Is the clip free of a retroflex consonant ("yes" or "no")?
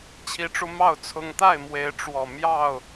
no